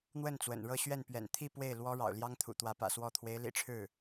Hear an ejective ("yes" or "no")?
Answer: no